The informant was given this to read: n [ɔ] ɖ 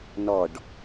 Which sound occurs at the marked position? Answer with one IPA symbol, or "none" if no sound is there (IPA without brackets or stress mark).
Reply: ɔ